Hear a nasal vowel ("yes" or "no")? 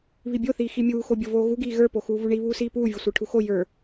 no